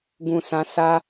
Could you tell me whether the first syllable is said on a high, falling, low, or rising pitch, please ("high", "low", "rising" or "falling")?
low